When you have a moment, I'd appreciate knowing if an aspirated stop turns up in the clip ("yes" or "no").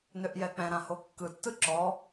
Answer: no